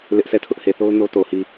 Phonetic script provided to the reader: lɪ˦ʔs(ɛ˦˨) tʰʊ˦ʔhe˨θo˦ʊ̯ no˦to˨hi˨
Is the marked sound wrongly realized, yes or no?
no